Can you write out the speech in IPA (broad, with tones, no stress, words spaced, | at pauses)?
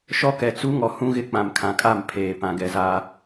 ʃɔ˦kɛ˨t͡su˦ŋɔ˨ hũ˦ɣɪ˦ k͡pã˨mkʰã˨kʼa˦˨m pʰeː˨ pã˨ɡɛ˨zaː˦